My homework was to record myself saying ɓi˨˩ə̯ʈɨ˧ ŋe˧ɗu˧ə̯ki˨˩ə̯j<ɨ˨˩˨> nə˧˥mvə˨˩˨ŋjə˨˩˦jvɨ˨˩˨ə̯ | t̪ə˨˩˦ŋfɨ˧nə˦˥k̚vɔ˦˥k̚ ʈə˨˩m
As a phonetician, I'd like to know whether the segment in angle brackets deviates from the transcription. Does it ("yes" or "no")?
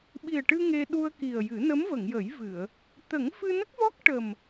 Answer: yes